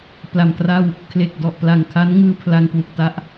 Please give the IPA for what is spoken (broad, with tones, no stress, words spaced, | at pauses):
pla˨˩mkra˥˩w | kʰle˨˩k̚dɔ˨˩ʔpla˨˩ŋkʰa˦˥n ŋɯː˧pʰla˧ŋkwu˨˩k̚ ta˥˩ʔ